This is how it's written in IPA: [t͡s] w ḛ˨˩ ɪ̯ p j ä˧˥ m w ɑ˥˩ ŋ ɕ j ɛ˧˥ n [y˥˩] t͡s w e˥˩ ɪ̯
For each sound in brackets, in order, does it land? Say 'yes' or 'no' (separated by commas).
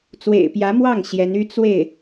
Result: yes, no